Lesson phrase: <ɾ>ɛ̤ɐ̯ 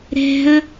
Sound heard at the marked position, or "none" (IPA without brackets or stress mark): ɾ